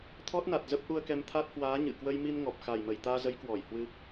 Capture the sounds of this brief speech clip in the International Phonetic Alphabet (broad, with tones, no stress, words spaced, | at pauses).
t̪ʰɔ˦˥t̚na˨˩t̚ zə˦˥p̚ʔu˧ə̯kɛ˧m t̪ʰa˦˥t̚hwaː˨˦ ɲɨ̰˧˨ kwə˧jmi˧n ŋɔ˨˩p̚ xa˨˩jmə˧˩jt̪aː˧zə˨˦j kwɔ˧˩jhwɨ˧